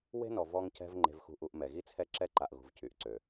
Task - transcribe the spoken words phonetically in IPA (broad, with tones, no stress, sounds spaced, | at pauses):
w e̤˦ n ɔ˨ v ɔ˦ ŋ c ɛ̤˦ v ŋ͡ǃ e̤˨ v x ṳ˨ ʔ u˨ ʔ m ɛ˨ ɣ i˦ t͡sʰ ɛ˦ ǁ ɛ˦ ǃ a˨ ʔ ɣ ṳ˨ v c y˨ ʔ ǀ ø˨